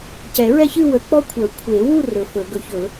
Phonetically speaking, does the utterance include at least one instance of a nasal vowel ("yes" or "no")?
no